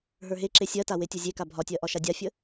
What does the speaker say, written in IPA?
ɦ ə˞ ɦ e ǁ e sʲ ɜ t a w e tʲ u zʲ e k a bʱ ɒ tʲ ɜ ʔ ɒ ʃ a dʲ a fʲ ə

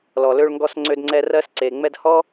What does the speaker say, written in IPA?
l ɔ˨ l ø˧ ɭ ŋ ɡ ɔ˧ s ŋ͡ǀ ø˧ d ŋ͡ǀ ɛ˧ r ɜ˧ s ǀ e˨ ŋ͡m ɛ˧ d h ɔ˦

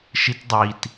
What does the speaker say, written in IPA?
ʃ i t dˤ i t

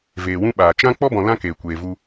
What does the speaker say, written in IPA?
v eː˨ w ũ˦ ɓ aː˨ t͡ʃ ã˦ k͡p ɔ˦ b ɔ̃˨ l ã˦ k eː˨ kʷ eː˨ v u˧

